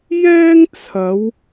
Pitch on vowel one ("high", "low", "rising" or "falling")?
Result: high